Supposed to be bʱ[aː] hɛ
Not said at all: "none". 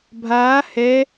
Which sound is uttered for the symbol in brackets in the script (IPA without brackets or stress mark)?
aː